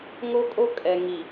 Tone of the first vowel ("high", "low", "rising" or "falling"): high